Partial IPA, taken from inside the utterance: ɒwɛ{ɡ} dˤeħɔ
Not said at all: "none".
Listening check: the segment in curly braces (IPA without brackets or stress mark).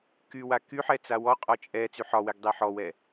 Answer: ɡ